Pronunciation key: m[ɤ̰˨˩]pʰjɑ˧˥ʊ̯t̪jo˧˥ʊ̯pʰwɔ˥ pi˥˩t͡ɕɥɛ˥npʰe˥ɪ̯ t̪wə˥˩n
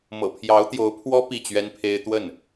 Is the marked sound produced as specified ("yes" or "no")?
yes